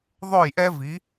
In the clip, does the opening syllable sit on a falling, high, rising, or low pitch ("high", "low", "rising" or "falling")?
falling